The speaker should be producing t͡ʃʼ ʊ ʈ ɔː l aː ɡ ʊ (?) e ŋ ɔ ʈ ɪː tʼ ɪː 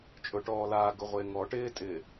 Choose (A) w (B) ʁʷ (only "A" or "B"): B